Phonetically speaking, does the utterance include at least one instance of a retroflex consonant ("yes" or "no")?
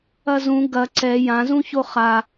no